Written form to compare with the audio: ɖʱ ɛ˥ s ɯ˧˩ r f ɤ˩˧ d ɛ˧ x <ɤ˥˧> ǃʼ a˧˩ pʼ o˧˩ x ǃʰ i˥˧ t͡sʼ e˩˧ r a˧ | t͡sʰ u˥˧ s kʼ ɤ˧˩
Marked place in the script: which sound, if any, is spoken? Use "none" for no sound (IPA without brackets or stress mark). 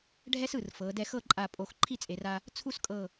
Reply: ɤ˥˧